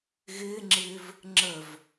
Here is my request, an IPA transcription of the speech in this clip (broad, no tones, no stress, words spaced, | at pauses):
ɣɪːŋ͡ǁɪːv | ŋ͡ǁəv